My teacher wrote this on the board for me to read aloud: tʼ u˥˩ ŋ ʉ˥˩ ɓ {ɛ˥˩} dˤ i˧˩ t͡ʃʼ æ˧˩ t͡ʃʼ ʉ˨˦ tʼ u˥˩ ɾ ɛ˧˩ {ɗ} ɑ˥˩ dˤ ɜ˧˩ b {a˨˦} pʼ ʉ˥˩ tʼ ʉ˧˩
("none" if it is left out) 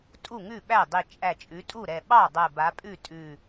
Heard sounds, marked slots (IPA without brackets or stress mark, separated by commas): æ˥˩, ɓ, a˨˦